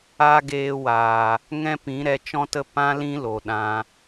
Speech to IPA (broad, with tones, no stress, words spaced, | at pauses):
a˦ ɡeː˧ waː˨ | ŋɛ̃˦pĩ˨˦ɾɛ˧ t͡ʃɔ̃˦tə˦ pã˦ lĩ˦lo˨ɗã˧